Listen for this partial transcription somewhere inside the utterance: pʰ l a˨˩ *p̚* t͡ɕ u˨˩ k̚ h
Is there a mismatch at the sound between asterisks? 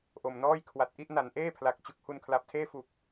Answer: yes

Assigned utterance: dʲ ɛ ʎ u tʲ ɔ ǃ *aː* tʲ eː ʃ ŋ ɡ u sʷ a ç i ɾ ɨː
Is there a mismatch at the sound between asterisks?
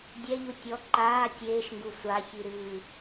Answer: no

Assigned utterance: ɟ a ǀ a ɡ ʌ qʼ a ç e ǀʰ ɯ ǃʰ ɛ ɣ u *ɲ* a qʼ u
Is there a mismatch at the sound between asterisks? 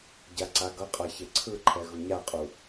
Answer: no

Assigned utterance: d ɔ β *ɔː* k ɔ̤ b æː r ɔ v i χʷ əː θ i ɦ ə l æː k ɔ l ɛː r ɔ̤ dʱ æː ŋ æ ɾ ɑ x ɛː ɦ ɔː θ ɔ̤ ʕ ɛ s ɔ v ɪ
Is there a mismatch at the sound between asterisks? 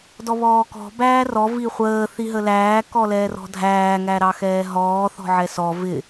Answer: no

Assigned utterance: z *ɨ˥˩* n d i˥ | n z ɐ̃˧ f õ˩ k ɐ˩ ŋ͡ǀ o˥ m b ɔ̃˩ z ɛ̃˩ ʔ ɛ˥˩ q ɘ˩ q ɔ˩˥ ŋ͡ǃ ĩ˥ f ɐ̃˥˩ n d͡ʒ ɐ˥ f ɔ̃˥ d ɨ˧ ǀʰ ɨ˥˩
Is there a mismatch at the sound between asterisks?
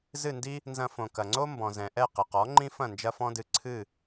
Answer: no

